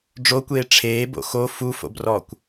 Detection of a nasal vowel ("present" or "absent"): absent